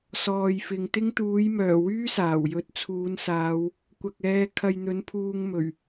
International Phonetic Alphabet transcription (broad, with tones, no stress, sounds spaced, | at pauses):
s ɔː˨ j f ɪ˨ ŋ t̪ ɪ˥ ŋ t̪ uː˨˥ j m œː˨˩ w yː˥ s aː˨˩ w j ɵ˧ t̚ t͡sʰ uː˨˧ n s aː˨˧ w | kʷ ɐ˨ k̚ ɛː˨˧ kʰ ɐ˧ j n̪ ɵ˨˥ n pʰ uː˧ ŋ m ɵ˨˩ ɥ